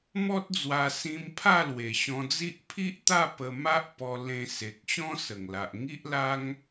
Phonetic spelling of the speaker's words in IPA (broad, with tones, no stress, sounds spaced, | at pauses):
m ɔ˦ t̚ d͡z w a˧ s ĩ˧ m pʰ a˥˧ l w e˨˩ ɕ ɔ̃˧ d͡z i˦ ʔ pʰ i˦ ʔ t̪ a˥˧ p ə˧ m a˦ ʔ p ɔ˧ l ẽ˧ s e˨ k̚ ɕ ɔ̃˦ s ə˨˩ ŋ l a˨ ʔ ŋ i˦ ʔ l a˦ ŋ